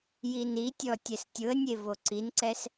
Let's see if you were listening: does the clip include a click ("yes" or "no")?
yes